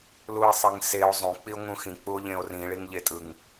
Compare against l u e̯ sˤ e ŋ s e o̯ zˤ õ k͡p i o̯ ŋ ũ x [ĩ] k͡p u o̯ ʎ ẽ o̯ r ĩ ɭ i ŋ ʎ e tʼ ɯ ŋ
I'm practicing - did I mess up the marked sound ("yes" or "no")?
no